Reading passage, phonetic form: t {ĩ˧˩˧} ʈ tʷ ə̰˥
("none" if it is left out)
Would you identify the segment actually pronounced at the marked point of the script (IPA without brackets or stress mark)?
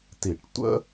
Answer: i˧˩˧